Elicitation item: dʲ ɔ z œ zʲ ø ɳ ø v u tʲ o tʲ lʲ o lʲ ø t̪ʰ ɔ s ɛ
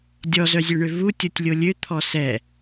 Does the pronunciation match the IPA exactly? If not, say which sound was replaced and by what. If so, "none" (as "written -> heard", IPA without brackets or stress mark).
none